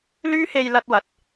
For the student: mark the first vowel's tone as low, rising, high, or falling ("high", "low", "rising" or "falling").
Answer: high